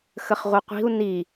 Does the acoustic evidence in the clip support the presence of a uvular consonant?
yes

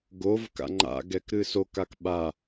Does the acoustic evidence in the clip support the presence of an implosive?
yes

